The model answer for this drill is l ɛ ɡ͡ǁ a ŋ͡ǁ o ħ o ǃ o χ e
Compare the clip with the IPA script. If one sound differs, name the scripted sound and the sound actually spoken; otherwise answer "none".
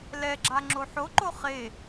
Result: none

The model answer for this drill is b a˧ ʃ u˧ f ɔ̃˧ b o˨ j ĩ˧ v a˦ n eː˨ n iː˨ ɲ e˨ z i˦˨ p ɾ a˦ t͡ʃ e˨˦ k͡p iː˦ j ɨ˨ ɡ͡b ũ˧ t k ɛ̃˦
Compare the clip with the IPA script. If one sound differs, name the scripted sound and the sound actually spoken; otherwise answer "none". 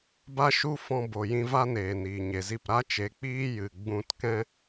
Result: none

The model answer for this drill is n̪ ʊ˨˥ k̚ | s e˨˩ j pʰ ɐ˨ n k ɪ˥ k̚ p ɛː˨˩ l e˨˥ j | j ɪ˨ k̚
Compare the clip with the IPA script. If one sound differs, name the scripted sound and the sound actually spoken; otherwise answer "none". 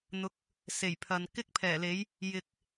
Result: p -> pʰ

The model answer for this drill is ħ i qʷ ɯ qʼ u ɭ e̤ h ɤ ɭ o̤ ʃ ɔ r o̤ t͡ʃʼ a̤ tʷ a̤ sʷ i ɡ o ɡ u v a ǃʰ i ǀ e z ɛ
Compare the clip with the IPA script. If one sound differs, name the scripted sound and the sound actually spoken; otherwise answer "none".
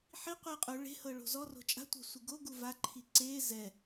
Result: ʃ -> z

